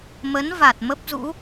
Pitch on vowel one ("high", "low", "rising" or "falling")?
rising